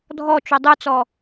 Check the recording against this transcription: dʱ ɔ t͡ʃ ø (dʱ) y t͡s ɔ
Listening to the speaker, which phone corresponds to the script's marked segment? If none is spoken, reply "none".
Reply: dˤ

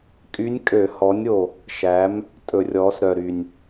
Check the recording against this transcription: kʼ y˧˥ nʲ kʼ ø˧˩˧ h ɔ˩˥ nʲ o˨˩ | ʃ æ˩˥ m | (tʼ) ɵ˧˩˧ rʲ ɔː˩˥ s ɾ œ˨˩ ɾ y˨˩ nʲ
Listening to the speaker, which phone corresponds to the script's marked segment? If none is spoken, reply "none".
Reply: tʼ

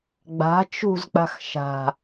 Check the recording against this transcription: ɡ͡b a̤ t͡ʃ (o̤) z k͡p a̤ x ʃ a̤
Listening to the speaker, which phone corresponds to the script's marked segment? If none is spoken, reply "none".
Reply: ṳ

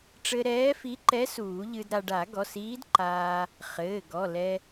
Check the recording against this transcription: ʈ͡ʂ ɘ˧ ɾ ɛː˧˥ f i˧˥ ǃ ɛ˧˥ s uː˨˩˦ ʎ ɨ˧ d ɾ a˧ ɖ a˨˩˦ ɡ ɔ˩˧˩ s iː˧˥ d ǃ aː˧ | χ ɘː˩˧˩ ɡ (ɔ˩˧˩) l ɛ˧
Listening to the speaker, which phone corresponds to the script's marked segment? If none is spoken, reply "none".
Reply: ɔ˩˧˩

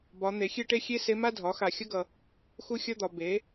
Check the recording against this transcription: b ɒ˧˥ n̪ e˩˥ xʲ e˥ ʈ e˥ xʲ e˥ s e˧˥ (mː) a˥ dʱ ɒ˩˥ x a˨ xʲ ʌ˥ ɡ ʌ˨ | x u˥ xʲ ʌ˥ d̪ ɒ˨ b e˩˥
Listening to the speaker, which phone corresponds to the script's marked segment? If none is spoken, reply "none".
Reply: m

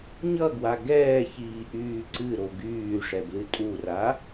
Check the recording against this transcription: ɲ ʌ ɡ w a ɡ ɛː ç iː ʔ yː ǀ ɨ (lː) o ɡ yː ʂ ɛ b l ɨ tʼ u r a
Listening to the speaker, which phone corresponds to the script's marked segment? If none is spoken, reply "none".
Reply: ɾ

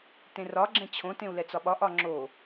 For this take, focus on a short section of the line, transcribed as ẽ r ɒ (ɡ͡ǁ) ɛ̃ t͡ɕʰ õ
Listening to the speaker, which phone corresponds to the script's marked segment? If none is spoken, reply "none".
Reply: ɡ͡ǁ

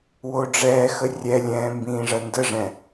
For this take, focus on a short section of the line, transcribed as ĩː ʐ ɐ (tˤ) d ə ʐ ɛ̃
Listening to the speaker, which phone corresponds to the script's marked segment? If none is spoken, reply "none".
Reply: n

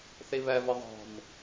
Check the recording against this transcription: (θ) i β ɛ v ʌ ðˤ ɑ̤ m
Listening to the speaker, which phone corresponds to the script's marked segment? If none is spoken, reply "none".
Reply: θ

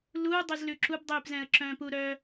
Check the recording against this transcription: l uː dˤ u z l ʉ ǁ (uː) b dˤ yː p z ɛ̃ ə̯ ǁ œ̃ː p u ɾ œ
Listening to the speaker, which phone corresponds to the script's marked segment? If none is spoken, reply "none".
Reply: u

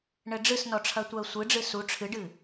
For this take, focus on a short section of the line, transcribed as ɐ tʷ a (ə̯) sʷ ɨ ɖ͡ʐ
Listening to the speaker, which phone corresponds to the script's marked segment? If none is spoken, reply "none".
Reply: ə̯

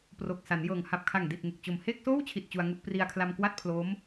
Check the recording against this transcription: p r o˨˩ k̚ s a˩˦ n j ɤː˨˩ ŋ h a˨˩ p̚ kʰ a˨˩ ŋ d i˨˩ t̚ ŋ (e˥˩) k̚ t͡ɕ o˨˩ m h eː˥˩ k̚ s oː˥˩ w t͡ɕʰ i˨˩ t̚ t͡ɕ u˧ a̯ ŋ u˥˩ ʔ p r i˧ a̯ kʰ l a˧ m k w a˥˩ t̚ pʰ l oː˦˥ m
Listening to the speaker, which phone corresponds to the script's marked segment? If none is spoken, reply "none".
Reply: e˨˩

